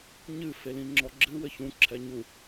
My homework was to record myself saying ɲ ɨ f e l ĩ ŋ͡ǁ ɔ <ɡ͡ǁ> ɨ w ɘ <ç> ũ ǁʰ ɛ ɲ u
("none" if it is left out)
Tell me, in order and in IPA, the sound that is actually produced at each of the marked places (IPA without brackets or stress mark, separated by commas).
ɡ͡ǁ, ç